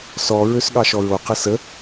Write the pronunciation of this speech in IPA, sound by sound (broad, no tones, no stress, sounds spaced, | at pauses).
s ɔ ɹ ø s ɠ ɑ ʃ ɔ ɹ o q ə s ə